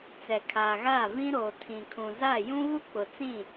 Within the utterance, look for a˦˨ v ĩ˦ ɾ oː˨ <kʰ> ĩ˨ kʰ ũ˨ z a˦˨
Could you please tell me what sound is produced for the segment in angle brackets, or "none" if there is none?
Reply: tʰ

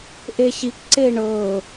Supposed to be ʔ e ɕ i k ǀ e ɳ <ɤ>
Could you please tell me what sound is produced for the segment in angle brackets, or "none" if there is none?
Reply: ɤ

